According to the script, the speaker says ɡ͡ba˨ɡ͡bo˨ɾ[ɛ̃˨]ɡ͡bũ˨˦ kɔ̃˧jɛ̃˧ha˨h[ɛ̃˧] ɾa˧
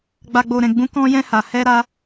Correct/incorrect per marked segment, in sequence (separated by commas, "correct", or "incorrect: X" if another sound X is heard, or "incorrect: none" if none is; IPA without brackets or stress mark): correct, incorrect: ɛ˧